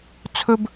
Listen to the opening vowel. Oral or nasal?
oral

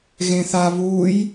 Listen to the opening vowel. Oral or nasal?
nasal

